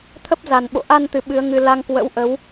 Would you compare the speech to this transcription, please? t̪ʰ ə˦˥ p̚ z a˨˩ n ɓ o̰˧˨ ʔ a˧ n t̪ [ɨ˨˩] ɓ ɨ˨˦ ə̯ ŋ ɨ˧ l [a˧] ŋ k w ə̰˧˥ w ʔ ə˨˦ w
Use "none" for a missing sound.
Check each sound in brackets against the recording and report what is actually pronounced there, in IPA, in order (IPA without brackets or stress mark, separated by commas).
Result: ɨ˨˩, a˧